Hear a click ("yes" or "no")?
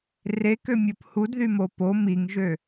no